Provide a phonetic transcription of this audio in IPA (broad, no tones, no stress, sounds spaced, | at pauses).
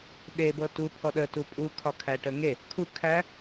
ɗ e b ɤ t u pʰ ɔ ɗ ə t u pʼ u kʰ ɒ kʰ æ ʈ ə ŋ e | kʰ u kʰ æ